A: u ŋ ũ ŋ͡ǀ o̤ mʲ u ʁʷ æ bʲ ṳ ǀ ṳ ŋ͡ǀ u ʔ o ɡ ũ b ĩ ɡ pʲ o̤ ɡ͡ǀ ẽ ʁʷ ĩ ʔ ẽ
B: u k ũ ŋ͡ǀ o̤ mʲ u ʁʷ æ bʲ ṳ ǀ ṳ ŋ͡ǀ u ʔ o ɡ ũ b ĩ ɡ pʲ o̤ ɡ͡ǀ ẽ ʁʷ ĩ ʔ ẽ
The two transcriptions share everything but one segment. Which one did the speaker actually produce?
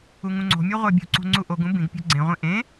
A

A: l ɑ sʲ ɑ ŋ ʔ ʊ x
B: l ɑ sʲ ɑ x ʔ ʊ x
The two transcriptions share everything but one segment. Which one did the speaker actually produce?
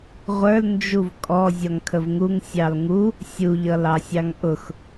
A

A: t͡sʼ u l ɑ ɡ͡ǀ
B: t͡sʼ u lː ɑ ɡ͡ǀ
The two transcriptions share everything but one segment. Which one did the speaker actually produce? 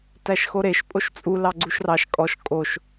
A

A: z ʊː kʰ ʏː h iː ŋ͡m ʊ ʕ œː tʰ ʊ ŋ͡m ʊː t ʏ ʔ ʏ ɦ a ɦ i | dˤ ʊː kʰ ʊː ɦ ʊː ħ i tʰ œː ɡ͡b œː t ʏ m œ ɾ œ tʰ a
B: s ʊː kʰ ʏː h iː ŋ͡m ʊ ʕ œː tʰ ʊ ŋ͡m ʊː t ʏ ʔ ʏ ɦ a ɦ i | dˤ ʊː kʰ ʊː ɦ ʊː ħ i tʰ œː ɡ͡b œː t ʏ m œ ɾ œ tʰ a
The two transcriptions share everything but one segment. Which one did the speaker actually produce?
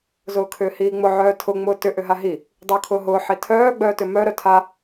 A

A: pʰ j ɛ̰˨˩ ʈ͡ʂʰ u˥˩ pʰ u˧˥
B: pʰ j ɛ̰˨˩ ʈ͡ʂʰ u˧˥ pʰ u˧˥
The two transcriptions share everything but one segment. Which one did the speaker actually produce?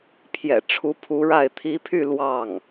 B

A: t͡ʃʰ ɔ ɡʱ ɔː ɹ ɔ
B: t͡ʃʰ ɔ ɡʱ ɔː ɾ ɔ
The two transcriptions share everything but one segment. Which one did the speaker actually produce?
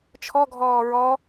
A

